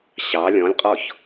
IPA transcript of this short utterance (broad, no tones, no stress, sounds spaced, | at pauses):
ɕ ɑ lʲ ɔ̃ lʲ qʼ ɔ ç